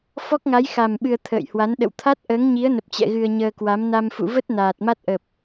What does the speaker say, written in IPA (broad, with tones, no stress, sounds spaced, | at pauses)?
f ɔ˦˥ k̚ ŋ a˨˦ j x a˨˩ m ɓ ɨ˧ ə̯ t̪ʰ ə̰ː˧˨ j h w a˨˦ n ɗ ə̰˧˨ w t̪ʰ a˦˥ t̚ ʔ əː˨˦ ŋ ɲ i˨˦ ə̯ n ə˨˩ p̚ t͡ɕ ɛ̰˧˨ ɣ ɨ˧ ə̯ ɲ əː˧ k w a˨˦ m n a˧ m f ṵ˧˨ v ə˦˥ t̚ n aː˨˩ t̚ m a˦˥ t̚ ʔ ə˨˩ p̚